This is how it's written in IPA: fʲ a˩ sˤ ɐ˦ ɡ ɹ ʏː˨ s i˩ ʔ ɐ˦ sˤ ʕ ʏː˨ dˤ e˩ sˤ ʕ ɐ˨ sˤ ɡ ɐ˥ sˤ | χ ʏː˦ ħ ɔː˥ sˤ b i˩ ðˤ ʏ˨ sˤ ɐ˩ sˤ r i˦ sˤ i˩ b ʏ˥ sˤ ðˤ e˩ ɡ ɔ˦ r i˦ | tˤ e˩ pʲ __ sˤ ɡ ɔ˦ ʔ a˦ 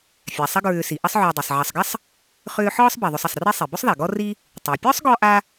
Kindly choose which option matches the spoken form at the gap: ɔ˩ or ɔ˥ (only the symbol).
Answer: ɔ˥